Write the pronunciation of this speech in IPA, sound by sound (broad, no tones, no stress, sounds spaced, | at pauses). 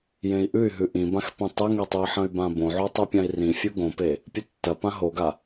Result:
j ẽ i̯ ʔ ʉ y̯ ɦ ʉ ʔ ĩ b ã x p ĩ tˤ e ŋ e tˤ u i̯ ħ ɐ̃ y̯ b ã b õ ʕ o tˤ u pʲ ã i̯ r ĩ fʲ u ɡ õ p e | pʲ ɨ tː ɐ p ã ɦ o ɡ a